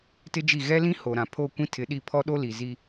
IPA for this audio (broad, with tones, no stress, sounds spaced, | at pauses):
t ɪ˦ d͡ʒ i˦˨ ɣ ɛ˦ l ĩ˦ h o˨ ɾ ã˨ pʰ o˦˨ kʷ ĩ˦ tʰ ɪ˨˦ ɗ i˦˨ pʰ ɔ˦ ɗ o˦ l i˨ z i˦